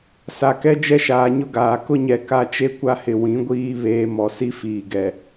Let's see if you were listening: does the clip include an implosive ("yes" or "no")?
no